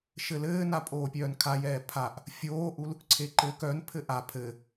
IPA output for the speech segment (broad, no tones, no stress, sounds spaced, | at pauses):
ʃ ɘ l ɘː n a pʼ oː pʲ œː n kʰ a j ɛː pʰ a ʔ | fʲ oː ʔ u l | ǀʰ e ǃ ɘː k œ n pʰ ɘ ʔ a pʰ ɘ